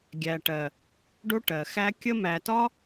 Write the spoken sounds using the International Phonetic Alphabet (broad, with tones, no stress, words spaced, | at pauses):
ɡʲæ˨ʈɜ˨ | ɖo˦ʈɜ˨xæ˦ kʲə˦mæ˨ tɒ˦